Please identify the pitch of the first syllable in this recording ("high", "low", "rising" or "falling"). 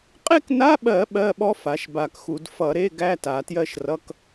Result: falling